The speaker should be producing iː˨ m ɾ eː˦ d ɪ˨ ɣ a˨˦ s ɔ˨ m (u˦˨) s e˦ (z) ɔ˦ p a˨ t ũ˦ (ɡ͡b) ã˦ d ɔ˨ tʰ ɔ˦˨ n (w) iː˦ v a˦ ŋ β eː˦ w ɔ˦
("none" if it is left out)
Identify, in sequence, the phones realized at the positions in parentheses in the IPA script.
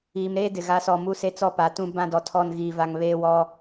u˦˨, t͡s, b, ɣ

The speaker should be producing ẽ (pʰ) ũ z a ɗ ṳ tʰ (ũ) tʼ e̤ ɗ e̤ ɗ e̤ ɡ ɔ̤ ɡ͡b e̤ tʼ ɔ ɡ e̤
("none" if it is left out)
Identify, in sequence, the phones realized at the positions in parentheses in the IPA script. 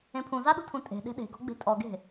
pʰ, ũ

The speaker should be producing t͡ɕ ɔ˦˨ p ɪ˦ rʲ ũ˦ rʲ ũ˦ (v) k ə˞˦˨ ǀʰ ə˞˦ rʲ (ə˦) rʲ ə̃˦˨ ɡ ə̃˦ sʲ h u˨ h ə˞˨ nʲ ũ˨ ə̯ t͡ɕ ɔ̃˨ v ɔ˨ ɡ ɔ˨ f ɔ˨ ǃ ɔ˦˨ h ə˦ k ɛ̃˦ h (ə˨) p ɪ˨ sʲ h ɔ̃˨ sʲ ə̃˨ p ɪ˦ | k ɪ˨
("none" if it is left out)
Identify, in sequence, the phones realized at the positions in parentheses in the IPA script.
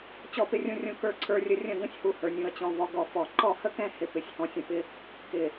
none, ə˦, ɪ˨

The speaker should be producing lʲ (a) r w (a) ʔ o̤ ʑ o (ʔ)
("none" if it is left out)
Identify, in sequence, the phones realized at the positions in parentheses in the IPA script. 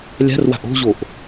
a̤, a̤, ʔ

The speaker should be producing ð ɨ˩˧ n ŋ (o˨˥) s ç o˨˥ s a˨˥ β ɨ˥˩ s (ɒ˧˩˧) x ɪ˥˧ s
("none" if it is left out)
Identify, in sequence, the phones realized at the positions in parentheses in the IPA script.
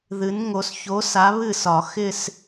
o˩˧, ɒ˧˩˧

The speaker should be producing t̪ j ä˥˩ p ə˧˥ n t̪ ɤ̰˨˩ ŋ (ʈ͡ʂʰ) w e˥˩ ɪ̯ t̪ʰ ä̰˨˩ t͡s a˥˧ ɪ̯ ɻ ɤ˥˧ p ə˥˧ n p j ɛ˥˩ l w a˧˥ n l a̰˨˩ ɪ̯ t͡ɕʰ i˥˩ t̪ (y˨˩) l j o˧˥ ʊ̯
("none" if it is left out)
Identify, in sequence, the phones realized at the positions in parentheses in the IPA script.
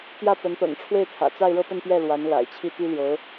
ʈ͡ʂʰ, y˥

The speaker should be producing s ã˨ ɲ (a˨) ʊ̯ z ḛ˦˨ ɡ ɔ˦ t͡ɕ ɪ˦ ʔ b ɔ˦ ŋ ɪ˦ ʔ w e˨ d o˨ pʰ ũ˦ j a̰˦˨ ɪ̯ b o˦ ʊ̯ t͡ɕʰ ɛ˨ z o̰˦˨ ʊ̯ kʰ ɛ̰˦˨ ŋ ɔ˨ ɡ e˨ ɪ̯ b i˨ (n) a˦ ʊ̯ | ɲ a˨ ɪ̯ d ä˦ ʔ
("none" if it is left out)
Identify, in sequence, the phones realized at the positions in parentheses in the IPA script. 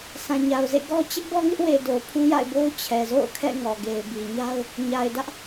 a˨, ɲ

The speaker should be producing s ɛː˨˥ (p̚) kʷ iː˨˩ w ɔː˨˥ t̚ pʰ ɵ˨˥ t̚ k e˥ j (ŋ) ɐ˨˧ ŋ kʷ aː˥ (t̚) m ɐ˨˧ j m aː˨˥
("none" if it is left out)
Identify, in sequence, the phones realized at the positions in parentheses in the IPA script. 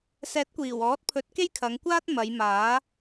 t̚, kʰ, t̚

